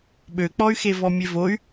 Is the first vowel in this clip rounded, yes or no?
yes